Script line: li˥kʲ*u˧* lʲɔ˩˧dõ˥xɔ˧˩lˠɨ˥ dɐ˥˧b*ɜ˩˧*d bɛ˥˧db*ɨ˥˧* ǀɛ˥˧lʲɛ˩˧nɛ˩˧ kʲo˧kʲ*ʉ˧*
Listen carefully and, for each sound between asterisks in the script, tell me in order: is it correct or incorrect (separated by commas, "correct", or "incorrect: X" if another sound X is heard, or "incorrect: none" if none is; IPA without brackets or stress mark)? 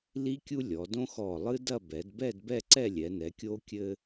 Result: incorrect: u˥, incorrect: ɛ˩˧, incorrect: ɛ˥˧, incorrect: ɘ˧